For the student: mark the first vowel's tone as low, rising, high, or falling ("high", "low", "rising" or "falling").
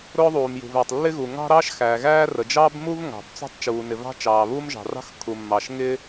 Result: high